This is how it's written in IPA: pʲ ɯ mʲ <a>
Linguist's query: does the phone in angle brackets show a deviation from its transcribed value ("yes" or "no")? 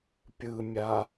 no